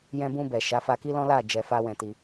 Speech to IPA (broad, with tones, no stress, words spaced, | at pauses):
jɛ̃˧bũ˧bɛ˨ ʃa˨˦fa˧ki˦lɔ̃˦ la˦˨ d͡ʒɛ˧fa˦wɛ̃˧ti˧